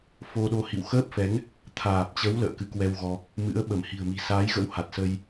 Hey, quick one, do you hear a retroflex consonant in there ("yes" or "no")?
no